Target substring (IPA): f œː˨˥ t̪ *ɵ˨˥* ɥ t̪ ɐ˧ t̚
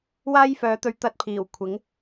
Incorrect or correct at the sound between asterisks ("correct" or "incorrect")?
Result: correct